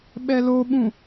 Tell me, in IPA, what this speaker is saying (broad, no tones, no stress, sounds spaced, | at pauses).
ɓ ɛ l o ɓ ũ